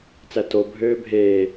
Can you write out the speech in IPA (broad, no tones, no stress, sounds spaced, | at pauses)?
t͡s æ t o bʱ øː bʱ eː